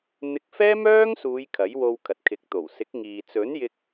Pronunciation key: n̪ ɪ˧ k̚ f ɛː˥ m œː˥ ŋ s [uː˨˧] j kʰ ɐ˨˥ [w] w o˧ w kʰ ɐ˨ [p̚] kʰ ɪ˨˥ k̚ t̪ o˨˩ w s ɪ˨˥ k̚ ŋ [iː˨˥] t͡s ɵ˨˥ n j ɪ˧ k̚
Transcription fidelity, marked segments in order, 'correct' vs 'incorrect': correct, incorrect, incorrect, incorrect

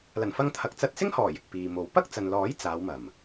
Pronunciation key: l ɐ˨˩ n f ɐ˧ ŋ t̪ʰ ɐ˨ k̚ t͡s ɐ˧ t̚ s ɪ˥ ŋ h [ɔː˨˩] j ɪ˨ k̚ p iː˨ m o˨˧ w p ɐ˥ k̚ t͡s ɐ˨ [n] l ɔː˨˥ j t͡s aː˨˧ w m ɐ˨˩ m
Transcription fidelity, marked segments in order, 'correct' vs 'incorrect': correct, correct

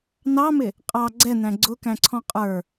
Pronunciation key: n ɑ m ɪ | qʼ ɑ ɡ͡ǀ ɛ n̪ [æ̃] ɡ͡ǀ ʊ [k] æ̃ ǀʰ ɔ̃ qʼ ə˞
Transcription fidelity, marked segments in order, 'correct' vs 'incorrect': correct, correct

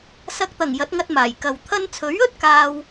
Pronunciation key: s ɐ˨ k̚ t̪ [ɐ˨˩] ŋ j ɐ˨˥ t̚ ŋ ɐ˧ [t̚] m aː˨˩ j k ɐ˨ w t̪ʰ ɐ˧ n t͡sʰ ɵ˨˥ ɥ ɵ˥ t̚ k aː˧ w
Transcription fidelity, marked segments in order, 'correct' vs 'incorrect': correct, correct

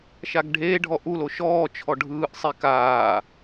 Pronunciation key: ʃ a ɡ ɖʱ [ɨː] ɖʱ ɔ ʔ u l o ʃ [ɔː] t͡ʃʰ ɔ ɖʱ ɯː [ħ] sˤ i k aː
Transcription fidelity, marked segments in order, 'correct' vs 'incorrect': incorrect, correct, incorrect

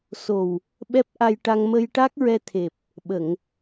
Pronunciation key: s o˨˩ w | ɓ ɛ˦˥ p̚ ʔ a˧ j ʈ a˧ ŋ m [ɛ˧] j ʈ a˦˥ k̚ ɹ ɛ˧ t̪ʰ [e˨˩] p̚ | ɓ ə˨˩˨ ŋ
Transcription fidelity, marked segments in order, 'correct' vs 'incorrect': incorrect, correct

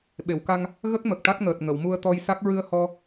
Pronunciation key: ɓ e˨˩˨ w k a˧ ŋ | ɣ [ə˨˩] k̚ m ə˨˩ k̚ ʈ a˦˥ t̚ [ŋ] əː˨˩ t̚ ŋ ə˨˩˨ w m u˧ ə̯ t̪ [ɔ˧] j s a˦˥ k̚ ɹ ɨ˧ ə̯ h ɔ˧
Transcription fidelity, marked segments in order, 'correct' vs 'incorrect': incorrect, correct, correct

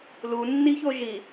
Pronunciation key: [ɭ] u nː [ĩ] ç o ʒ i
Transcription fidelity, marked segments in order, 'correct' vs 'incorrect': incorrect, incorrect

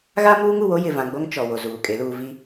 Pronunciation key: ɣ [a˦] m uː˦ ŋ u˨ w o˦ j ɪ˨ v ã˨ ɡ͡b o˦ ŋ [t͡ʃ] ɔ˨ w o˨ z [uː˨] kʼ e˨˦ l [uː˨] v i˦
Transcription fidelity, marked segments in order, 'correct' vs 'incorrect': correct, correct, correct, correct

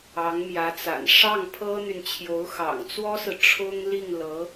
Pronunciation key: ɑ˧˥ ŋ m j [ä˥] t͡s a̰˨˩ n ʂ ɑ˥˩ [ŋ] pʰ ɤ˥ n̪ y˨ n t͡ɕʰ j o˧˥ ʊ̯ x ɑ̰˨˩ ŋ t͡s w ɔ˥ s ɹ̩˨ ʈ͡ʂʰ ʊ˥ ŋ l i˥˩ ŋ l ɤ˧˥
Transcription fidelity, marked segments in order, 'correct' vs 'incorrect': incorrect, correct

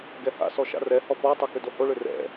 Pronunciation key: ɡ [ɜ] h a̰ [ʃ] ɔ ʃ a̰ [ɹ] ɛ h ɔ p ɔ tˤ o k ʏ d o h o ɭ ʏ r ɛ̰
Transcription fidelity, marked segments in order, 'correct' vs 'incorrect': incorrect, incorrect, incorrect

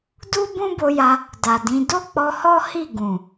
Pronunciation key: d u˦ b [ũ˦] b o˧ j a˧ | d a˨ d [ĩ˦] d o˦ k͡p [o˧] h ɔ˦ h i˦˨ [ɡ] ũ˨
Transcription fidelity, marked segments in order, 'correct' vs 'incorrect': correct, incorrect, incorrect, correct

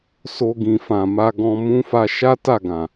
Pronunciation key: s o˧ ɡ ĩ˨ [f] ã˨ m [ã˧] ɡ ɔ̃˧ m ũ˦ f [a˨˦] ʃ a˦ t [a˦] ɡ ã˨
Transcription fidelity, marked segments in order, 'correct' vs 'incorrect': correct, incorrect, incorrect, incorrect

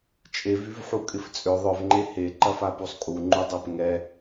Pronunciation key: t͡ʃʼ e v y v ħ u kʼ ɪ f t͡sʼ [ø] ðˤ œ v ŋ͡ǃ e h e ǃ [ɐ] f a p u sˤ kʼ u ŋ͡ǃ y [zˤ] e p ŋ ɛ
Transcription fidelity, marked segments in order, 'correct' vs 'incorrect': correct, correct, incorrect

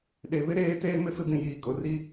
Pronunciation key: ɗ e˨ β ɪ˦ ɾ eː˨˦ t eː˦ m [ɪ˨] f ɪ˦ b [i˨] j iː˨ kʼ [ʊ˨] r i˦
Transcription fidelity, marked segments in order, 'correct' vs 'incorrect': incorrect, incorrect, correct

